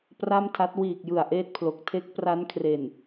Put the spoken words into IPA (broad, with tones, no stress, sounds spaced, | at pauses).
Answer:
p r a˥˩ m tʰ a˦˥ t̚ w iː˨˩ k̚ j ɯ˨˩ a̯ ʔ eː˥˩ t̚ pʰ l o˨˩ k̚ tʰ e˦˥ k̚ p r a˦˥ n kʰ r e˨˩ n